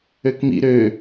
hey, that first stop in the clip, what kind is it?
plain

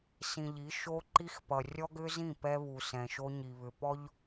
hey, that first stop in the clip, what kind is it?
click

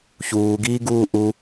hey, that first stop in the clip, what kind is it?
plain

